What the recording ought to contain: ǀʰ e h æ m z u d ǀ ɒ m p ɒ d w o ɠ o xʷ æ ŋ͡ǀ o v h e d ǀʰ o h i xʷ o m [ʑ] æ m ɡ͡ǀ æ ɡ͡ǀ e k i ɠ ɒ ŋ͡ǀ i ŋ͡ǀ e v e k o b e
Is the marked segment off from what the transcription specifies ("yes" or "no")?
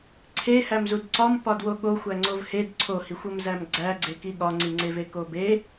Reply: yes